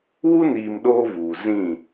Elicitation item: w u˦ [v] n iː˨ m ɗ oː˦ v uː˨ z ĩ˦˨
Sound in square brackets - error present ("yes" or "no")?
yes